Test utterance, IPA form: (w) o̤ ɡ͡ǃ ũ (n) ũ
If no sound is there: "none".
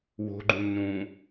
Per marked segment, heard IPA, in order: w, n

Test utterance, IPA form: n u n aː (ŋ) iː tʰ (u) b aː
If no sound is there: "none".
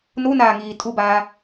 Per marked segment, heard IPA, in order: ŋ, u

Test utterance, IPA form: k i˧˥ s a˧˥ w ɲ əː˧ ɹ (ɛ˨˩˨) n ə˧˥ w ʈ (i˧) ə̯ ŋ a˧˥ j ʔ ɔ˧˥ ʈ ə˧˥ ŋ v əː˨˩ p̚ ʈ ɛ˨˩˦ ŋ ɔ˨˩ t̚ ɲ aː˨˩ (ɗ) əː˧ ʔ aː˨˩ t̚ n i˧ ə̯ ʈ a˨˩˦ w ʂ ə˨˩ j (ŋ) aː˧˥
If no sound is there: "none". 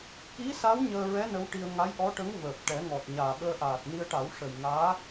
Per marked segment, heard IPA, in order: ɛ˧˥, i˧, ɓ, ŋ

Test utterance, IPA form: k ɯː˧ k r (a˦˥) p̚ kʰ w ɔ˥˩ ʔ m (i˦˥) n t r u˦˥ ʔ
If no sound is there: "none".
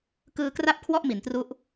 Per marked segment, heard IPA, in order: a˥˩, i˩˦

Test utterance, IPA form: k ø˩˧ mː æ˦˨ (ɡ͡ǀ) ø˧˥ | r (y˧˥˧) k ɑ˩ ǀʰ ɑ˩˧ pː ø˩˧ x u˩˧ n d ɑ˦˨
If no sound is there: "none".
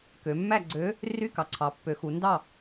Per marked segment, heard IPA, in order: ɡ͡ǀ, y˧˥˧

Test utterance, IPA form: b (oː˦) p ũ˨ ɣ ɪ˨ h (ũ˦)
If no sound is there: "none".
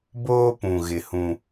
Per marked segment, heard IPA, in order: oː˦, ũ˦

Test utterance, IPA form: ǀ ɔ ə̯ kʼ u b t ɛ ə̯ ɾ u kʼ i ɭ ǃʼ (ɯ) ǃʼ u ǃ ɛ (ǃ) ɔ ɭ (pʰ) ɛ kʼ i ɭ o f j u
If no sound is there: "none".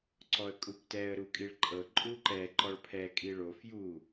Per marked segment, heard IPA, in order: ɤ, ǃ, pʰ

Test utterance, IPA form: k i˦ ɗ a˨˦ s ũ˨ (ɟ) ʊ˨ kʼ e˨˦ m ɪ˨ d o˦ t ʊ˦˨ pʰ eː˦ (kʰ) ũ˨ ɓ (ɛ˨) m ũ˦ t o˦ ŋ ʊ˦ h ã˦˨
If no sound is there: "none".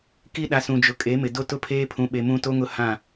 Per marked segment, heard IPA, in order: d͡ʒ, pʰ, e˨

